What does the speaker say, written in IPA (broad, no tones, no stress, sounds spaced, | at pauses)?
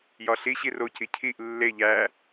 j ɒ ɬ i ɕ i r o c i cʰ i ʔ lː e ʎ æ